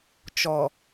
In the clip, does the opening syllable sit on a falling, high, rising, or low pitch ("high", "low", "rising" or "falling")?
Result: low